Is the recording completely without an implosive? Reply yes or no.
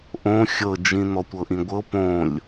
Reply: yes